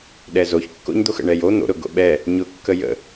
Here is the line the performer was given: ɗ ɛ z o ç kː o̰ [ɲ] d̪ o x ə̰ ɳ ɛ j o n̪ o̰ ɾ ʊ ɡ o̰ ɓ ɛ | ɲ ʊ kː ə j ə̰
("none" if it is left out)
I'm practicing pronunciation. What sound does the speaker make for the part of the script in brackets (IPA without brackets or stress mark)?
ɲ